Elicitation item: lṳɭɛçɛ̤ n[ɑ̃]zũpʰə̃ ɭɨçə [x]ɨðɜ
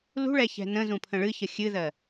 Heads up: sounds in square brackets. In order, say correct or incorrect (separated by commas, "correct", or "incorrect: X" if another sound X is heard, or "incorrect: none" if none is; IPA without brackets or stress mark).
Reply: incorrect: ə̃, incorrect: xʲ